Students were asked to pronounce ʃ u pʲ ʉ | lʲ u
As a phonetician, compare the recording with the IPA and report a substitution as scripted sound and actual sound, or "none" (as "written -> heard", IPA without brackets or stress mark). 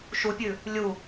none